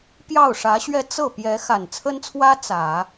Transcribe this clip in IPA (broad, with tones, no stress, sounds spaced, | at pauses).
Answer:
p j ɑ˥˩ ʊ̯ ʂ ä˧˥ ɕ ɥ ɛ˥˧ t͡s ɤ˥˩ p j ɛ˧˥ x a˨˩ n t͡sʰ ə˥ n t͡sʰ w ä˥ t͡s ä˨˩˦